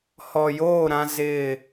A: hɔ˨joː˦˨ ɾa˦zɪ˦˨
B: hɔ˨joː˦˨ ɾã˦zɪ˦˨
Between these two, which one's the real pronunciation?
B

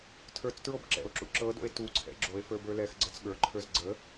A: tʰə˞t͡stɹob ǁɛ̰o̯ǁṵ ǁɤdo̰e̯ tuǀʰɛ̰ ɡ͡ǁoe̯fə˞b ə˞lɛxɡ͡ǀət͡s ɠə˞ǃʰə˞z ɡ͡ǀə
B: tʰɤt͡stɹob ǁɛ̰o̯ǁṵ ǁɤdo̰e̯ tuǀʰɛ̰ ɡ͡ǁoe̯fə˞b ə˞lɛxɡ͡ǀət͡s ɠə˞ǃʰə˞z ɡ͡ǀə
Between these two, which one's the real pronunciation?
A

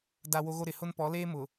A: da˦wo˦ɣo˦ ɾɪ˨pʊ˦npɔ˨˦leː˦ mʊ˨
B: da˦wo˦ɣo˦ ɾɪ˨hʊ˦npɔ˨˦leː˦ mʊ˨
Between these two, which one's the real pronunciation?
B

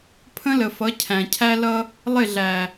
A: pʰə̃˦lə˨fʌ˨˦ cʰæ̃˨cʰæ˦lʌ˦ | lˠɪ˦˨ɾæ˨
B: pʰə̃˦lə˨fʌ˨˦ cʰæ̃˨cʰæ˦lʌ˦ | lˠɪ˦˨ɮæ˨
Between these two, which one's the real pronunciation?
B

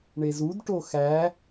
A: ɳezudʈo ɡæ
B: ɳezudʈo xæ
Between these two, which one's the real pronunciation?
B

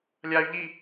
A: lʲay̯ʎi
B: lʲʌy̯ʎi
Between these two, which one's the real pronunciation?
A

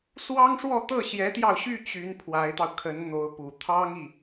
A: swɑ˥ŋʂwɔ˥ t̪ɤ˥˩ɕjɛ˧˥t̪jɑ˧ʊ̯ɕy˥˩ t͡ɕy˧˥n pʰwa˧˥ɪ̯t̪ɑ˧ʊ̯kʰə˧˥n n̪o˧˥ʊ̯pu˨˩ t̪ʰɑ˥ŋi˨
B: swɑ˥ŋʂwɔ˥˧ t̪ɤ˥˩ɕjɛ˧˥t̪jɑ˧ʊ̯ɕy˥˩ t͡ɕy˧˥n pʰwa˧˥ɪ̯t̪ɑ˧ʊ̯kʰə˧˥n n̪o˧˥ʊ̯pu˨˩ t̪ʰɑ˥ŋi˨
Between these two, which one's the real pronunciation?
B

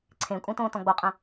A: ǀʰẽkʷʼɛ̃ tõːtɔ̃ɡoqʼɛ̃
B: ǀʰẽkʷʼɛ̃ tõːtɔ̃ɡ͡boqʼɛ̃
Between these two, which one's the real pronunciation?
B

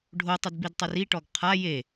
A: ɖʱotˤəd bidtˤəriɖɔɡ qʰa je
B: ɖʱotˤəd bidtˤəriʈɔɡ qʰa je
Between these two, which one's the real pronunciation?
B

